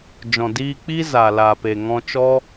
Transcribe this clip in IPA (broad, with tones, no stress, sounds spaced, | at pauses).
d͡ʒ ɔ̃˨ d iː˧ k͡p iː˦ z a˨ l a˨ p e˨ ŋ ɔ̃˧ t͡ʃ ɔ˦